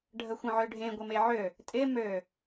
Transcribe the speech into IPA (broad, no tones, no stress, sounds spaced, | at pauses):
ɖʱ ə xʷ ə̃ ʕ ø ɖʱ ẽ ɡʷ ɪ m e ʕ ø | tʼ ɪ m ø